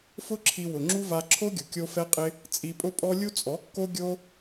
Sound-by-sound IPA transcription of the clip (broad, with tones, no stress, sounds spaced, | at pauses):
f ʊ˦ ǁʰ i˧ w ʊ˨ ŋ͡ǁ u˦ v a˧ ǁʰ o˦ ɡʲ ʊ˨ kʲ o˦ f ɛ˦ qʼ ɪ˦ | t͡sʼ i˧ pʼ ʊ˦ pʼ ɔ˦ lʲ u˦ t͡sʼ ɔ˨˦ kː o˦ ɡʲ o˦